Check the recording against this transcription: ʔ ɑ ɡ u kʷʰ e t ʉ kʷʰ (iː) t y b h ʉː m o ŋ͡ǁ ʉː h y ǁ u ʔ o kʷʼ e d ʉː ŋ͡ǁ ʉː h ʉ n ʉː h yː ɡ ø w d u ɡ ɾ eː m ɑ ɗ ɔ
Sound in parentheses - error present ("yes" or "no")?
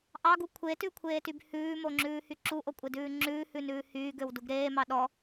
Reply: yes